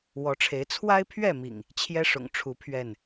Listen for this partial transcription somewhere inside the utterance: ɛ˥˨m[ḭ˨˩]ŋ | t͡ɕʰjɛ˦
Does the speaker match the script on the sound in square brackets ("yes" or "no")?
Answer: yes